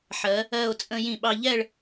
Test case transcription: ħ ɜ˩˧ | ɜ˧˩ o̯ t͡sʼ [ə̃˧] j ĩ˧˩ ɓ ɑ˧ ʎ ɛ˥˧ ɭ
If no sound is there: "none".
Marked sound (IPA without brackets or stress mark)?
ə̃˧